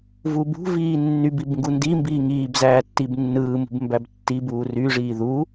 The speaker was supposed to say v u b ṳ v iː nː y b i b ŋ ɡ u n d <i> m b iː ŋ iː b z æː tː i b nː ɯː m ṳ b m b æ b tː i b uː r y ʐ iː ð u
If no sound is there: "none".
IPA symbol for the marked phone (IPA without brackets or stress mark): i